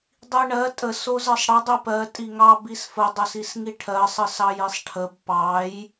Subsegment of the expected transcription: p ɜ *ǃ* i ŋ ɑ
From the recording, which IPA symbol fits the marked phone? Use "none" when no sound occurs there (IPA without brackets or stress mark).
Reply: tʼ